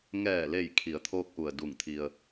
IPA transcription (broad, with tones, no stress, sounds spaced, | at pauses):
ŋ ɛː˧˩ l e˧˩ j kʰ i˩˧ ə̯ t̪ʰ oː˧ k̚ ʔ u˩ ə̯ d u˧˩ ŋ t̪ʰ i˧ ə̯